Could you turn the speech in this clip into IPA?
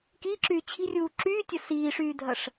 k iː ǁ yː t͡ɕʰ i̤ rʲ uː ǁ yː tʲ ɐ s iː ʂ yː dʱ ɐ ʂ

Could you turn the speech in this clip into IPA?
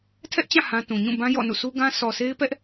tʰ ɛ˦ ʔ t͡ɕ ã˦˨ h ã˦ t ũ˨ ɲ ũ˦˨ b ã˦ j ɔ̰˦˨ n ṵ˦˨ s u˦ ɡ ã˦ s ɔ˨ sʰ e˦ ɪ̯ p ɛ˦ ʔ

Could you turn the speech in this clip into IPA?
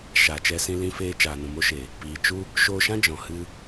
ʃ a˨ t͡ʃ ɛ˧ s ĩ˧ l ĩ˧ f eː˧ t͡ʃ aː˨ n ũ˨ m o˦ ʃ e˨ | p iː˨ t͡ʃ u˦ | ʃ oː˧ ʃ ã˦ d͡ʒ ɔ̃˨ h ɨ˦

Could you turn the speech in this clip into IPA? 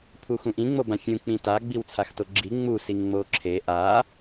pʰ u x ũ ʔ ĩ ŋ͡m o b ã fʲ ũ k͡p ĩ t a ɡ͡b i w t͡sʰ a x t o ɡ͡ǁ i ŋ͡m u s i ŋ ŋ͡m o ǁʰ e ʔ a

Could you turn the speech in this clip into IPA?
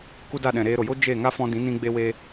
k u˦ d a˦˨ ɗ ɛ̃˨ ɾ eː˧ ɾ o˨ j o˦ d͡ʒ e˦˨ ŋ a˦ f ɔ̃˧ d ĩ˨˦ n ĩ˧ ɡ͡b e˧ w e˧

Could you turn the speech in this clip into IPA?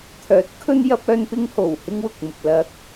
t̪ʰ œː˨˥ t̚ kʰ ɵ˧ n j ɐ˧ p̚ œː˧ n p ɪ˧ ŋ h o˨˩ w h ɪ˥ ŋ w ʊ˨ k̚ m ʊ˨ k̚ l ɐ˨˥ k̚

